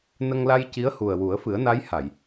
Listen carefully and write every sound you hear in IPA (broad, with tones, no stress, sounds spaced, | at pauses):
n ə˧ ŋ l a˧ j c i˧˥ ə̯ h u˨˩ ə̯ w u˨˩˦ ə̯ f ɨ˨˩˦ ə̯ n a˧˥ j h a˨˩˨ j